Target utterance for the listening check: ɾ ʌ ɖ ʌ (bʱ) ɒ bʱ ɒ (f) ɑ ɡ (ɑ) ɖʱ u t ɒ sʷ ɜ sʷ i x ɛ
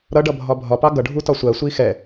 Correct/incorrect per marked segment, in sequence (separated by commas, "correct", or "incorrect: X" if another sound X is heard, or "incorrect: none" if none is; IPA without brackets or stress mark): correct, incorrect: p, incorrect: ʌ